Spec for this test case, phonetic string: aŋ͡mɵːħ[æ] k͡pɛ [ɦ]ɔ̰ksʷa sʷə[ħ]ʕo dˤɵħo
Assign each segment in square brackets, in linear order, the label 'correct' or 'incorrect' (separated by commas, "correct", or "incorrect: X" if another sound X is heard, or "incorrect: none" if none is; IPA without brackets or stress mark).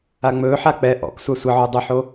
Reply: incorrect: a, incorrect: ʔ, incorrect: none